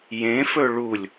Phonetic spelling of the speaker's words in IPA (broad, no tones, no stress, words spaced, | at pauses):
jẽfɵ ɭulʲ